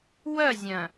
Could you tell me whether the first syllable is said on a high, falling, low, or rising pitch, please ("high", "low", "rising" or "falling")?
falling